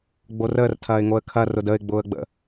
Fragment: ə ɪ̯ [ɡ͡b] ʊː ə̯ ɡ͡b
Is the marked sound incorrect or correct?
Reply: correct